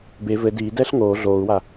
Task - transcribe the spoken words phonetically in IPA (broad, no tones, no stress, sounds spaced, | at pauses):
b e v ɘ d iː d ɛː ɬ ŋ oː ɮ oː u̯ w a